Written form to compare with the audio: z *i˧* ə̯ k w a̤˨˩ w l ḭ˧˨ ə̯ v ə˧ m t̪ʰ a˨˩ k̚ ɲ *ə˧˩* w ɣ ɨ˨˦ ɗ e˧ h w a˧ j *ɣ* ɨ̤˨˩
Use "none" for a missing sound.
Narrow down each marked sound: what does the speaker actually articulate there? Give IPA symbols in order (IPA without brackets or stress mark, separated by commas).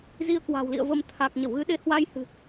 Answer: i˧, ə˧˩, h